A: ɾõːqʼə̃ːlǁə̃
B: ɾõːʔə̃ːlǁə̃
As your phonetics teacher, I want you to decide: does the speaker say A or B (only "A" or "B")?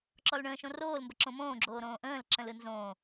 B